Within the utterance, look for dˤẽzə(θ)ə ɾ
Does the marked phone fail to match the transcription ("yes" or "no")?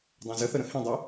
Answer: no